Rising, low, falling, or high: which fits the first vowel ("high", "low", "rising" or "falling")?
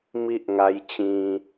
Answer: high